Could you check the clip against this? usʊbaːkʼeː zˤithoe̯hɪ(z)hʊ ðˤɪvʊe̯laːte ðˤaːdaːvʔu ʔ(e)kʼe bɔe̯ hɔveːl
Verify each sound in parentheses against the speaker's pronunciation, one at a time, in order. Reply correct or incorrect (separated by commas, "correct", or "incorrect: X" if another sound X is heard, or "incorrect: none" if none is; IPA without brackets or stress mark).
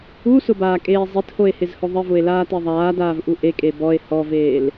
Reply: correct, correct